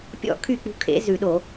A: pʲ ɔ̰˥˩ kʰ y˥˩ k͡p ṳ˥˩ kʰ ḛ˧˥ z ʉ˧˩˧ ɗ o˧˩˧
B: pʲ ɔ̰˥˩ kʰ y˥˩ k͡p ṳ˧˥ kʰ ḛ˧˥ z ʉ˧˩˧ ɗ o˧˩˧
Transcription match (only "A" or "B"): B